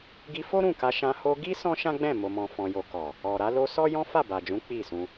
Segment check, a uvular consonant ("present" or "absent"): absent